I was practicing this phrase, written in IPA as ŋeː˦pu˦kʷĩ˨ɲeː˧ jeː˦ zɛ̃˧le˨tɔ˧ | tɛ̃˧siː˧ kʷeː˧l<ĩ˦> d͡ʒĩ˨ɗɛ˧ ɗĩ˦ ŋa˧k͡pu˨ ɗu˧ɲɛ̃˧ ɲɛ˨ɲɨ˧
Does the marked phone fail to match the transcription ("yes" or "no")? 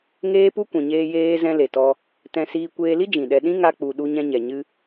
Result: yes